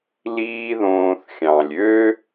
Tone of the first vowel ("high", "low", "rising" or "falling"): high